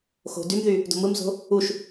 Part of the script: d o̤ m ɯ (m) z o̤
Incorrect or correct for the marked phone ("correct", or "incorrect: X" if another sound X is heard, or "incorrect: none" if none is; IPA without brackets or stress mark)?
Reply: correct